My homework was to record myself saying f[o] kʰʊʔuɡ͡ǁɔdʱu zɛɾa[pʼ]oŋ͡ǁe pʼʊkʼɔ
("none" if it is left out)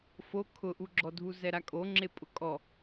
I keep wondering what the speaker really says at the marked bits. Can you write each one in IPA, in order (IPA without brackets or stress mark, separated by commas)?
o, kʼ